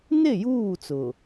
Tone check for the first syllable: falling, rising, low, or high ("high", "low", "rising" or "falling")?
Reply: falling